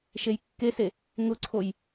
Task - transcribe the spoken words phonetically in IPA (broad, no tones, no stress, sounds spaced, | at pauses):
ʃ e j kː e s e | ŋ ʊ ǀʰ o j